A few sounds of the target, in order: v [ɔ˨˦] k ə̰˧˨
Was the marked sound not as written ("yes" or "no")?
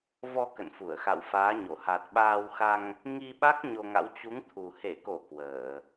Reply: yes